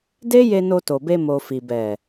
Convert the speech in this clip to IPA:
de˦je˧ no˧to˨be˧ mo˨fi˨ bɛ˨

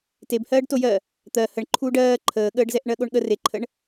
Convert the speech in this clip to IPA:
tebhɜːɖ tojɜ | t̪ɜ həɳǃʰuːɖ ɜː ǃʰəːɠəːɖzɛʔ ɳɜɠoɳɠə reǃʰəɳ

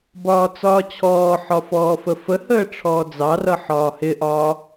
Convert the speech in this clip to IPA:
bɒːt͡sɒːt͡ɕʰɔːħɒ fɔːfəfəhəː ʈ͡ʂʰɔːd͡zɑrʌ ħɒːhɪʔɒː

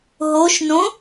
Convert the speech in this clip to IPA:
ɦoʃnõ

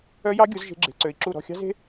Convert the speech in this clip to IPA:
œ˦˥jɑ˦˥ɡʲu˨˦z ʒe̤˦˥ɡ͡ǁe̤˨˦ǀø˨˦i̯ǁu˥˨ ɾɔ̤˥˨xʲɑ̤˦˥ze̤˦˥

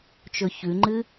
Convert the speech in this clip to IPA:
t͡ʃɵçʉŋ͡ǃɨ

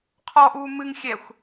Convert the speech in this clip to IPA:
qʰɔʔuː mɨŋxʲɛxʷ

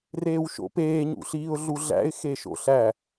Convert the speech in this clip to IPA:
reːwʃo̰peː ɲṵɬiːʊ̯ɮuɮæ̰ɪ̯ xeʃo̰ɬæ

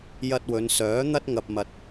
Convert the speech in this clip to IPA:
jɐ˧t̚wɵ˨˧nsœː˨˥ n̪ɐ˧t̚ŋɐ˨p̚mɐ˨t̚

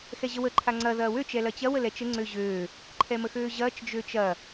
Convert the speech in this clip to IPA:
xɛʑəwə ǃʰaŋ͡ǀɐ ðɐːwøt͡ʃ ɛlɐt͡ɕɐw əlɛt͡ʃə ŋ͡ǀøʑøː | ǃʰɛməxøːʑɐːt͡ʃ d͡ʒøt͡ʃɐ

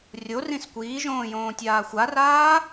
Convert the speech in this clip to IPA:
rʲo rĩskʷiːʒõː jõːtʲaːxʷaraː

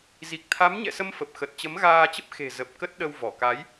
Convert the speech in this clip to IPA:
zi˨˩k̚t̪ʰa˨˦mɲɛ̰˧˨sə˧m fə˨˩p̚xə˨˩t̚ t͡ɕə˨˦mɣaː˧t͡ɕə˦˥p̚ xe̤˨˩zə˨˩p̚ kə˦˥t̚ɗə˧w vɔ˧˩ka˨˦j

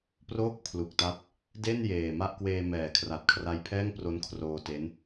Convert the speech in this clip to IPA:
proː˥˩k̚pʰlu˨˩k̚ta˦˥p̚ | de˥˩n jeː˨˩ma˥˩ʔ kweː˧mɛː˩˦kʰra˨˩t̚kʰra˧j pʰɛː˥˩ŋpro˦˥nkʰroː˧ te˦˥n

